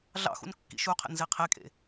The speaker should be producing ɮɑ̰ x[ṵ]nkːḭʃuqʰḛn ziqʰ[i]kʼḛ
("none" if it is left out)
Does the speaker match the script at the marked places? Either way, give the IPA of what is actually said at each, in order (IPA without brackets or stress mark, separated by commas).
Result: ṵ, e